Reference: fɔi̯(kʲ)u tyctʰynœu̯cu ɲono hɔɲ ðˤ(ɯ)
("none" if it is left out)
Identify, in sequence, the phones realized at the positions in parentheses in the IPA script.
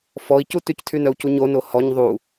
c, u

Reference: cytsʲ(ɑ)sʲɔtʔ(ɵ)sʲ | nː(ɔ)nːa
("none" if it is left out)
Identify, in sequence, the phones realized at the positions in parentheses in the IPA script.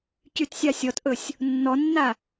ɑ, ɵ, ɔ

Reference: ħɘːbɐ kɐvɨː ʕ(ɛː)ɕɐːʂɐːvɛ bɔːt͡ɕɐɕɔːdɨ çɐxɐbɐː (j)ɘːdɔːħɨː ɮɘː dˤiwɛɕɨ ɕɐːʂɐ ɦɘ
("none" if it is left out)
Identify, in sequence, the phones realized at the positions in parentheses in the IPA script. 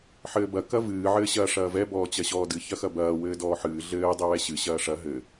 ɘː, w

